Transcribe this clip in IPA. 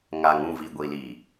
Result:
ŋ a˨ ŋ ũ˦˨ v i˨ ɡʷ i˨ l i˨

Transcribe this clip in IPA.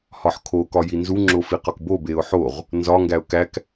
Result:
h ɒ ħ kʰ o k ɒ j i n z u ŋ͡ǁ o f i q ɒ k b o b e ʊ̯ ħ o ʁ | n z ɒ ŋ ɡ æ ʊ̯ k æ k

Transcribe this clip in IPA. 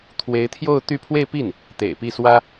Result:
t̪ʰ w e˧˥ ɪ̯ t̪ʰ j o˥˧ ʊ̯ t̪ y˥˧ pʰ w e˥˧ ɪ̯ p i˥˩ n | t̪ ḛ˨˩ ɪ̯ p i˥˩ s w ä˥

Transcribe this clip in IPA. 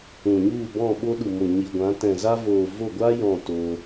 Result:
ũ˨ ɲ u˦˨ b ɔ̃˦˨ ɓ o˧ ɗ u˨ m o˨ ɲ i˨ ɡʷ ã˨˦ t ɛ̃˨ z a˧ v oː˨ v o˦˨ ɡʷ a˦ j ɔ̃˦˨ t oː˧

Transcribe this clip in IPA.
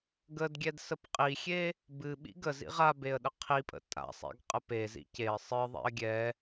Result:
ɡ ə d ɡʲ ɛ d s ə p qʼ i xʲ e | b ɨ ɓ ḭ ɡ ə z ḭ ʁ a b e ə̯ ɗ ə qʰ i pʼ ə̰ tʼ a̰ sˤ ḭ ɡ qʼ ə p e z ḭ c e ə̯ sˤ ɨ ðˤ ḭ ə̯ ɡʲ ɛ

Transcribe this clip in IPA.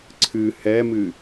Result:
ǀʰ ɨ h ɛ m ɨ

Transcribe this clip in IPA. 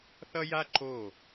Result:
θ ʌ˦ j a˦ ǃ o˦˨

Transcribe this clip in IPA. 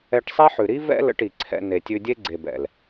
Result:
ɛ˧ ʈ sˤ ɛ˦ ħ ʉ˨ ɾ i˦ v ɛ̰˦ l ə̰˧ ʈ i˨ ǀʰ ɛ̰˧ n e˨ tʲ ʉ˧ dʲ e˦ ɡ͡ǀ e˨ b ɛ̰˨ l

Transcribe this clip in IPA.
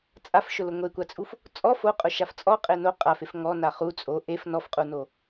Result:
t͡sʼ a f ʃ ʊ l ʊ ŋʷ e kʷ a t͡sʼ u f | t͡sʼ ɔ f o qʼ ʊ ʃ a f t͡sʼ ɔ qʼ e n o qʼ a f e f ŋ ɔ n a χ u t͡sʼ o ʔ e f n ɔ f qʼ u n o

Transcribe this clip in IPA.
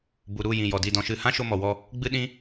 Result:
b u˨ ɾ u˦˨ j ĩ˨ j ɔ˨ d i˦˨ d ɔ̃˧ ʃ ɨ˦˨ h ã˦ ʃ o˧ m ɔ˨ w ɔ˧ | ɡ͡b ɨ˦ ɗ ĩ˦

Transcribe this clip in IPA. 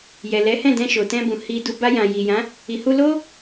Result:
j ɛ˨ l ɛ˨˦ h ɛ̃˦˨ d ɛ̃˧ ʃ o˨ t ɛ̃˧ b ũ˨ h i˨ d u˨ b a˧ j ã˨ j i˨ j ã˨˦ | i˨ h u˧ l o˦

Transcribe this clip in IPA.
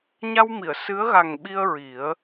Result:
ɲ a˧ w m i˨˩˨ ə̯ s ɨ˧˥ ə̯ ɣ a˨˩ ŋ ɓ i˧ ə̯ ɹ i˨˩˦ ə̯

